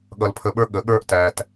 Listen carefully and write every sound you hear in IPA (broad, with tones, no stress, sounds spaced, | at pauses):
ɠ ʌ˧ l pʰ ə˧ ɓ ə˞˦ ɠ ə˨˦ ɠ ə˞˦ ʔ t æ˧ t